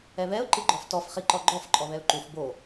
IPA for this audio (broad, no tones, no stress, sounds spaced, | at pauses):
ɛ β ɛ ʊ̯ ǃ ɨ ɡ͡ǃ ɔ f t ɔ f χ i ǃ ɔ ɡ͡ǃ ɔ f ǃʼ ɔ β ɛ ʊ̯ ǃ u f b o